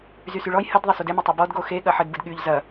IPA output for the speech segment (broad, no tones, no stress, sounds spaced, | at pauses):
z y s y ɭ ɔ j h ə d ðˤ ɐ s u d ɛ m ɐ tˤ e b ɔ d ɡ o x e ɠ ɐ ħ ə d b ɯ d ɠ y ʎ z ɐ